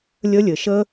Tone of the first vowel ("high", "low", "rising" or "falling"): high